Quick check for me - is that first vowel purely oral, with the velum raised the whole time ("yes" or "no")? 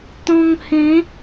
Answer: no